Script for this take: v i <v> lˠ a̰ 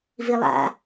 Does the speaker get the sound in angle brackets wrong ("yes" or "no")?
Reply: yes